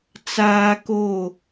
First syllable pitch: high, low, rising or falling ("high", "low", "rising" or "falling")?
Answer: high